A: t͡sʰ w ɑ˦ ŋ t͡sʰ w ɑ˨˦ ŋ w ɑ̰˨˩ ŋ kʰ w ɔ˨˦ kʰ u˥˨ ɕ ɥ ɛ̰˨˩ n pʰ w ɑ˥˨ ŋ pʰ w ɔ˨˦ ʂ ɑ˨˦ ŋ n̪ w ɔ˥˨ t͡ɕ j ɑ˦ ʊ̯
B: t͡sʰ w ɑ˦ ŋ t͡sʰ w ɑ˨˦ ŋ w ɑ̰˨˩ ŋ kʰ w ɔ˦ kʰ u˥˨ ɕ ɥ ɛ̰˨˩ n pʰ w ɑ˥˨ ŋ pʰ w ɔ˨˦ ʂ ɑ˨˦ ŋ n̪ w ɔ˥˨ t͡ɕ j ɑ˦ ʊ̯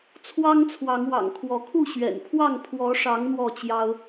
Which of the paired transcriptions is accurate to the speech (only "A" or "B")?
A